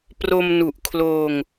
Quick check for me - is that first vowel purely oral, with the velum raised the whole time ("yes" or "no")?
yes